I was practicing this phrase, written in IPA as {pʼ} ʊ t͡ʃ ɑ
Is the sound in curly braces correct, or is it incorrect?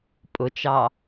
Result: correct